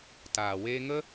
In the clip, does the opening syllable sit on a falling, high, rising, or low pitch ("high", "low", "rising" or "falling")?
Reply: low